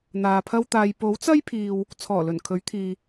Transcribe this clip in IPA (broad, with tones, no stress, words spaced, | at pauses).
n̪aː˨pʰɐ˥wt̪aː˧j po˨˥wt͡sɐ˥jpʰiː˨w | t͡sʰɔː˨˩lɵ˨˩n kʰɵ˨˥ɥt̪ʰiː˨